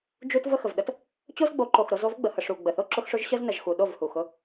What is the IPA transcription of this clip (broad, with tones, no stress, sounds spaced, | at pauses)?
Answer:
d͡ʒ u˦ t v ə˦ x ə˨ v ɗ ə˦ t | t͡ɕ o˦ z ɡ͡b o˨˦ ǃ o˨ x ɾ o˦ z o˦ v ɡ͡b ə˨ h ə˨ ʂ u˨ ɡ͡b ə˨ θ o˦ ǁ ʊ˦ x ʂ ʊ˦ ʒ ɕ ə˦ z n ə˨ ʒ x u˨ ɗ o˦˨ v h u˨ x ʊ˦